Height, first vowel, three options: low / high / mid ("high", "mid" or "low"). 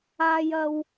low